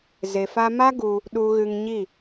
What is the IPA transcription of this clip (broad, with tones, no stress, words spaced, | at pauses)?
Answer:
ze˨fa˧ma˦ ɡu˧ | ɗu˧ɣɨ˧ŋɲi˦˨